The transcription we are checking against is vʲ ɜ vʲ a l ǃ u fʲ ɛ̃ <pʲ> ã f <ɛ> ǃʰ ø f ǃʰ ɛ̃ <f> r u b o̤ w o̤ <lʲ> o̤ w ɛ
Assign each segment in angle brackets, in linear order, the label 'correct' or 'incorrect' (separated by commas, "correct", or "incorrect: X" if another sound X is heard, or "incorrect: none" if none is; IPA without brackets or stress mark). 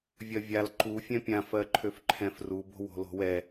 correct, incorrect: ɜ, correct, incorrect: l